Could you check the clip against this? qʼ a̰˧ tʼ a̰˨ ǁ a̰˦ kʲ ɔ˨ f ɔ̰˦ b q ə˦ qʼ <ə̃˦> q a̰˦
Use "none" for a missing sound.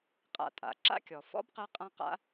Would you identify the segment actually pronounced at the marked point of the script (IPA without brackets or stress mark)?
ã˦